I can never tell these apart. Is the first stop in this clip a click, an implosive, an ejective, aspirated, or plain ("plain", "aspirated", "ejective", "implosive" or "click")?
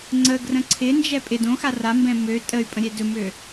click